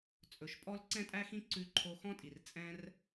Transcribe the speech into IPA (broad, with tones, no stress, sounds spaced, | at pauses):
t͡sʼ ɵ˨ ʃ pʼ ɔ˦ l ǀ ɛ̃˦ tʼ æ˦ x ĩ˦ ǀ ʉ˧ ǃʰ o˧ x ɔ̃˦ tʼ i˨ r t͡sʼ ɛ̃˧ r